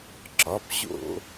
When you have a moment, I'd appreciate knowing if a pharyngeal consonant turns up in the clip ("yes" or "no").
no